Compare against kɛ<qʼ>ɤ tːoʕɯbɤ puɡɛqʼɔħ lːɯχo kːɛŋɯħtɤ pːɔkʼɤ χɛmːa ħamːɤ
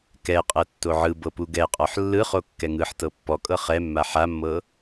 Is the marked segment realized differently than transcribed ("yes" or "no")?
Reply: no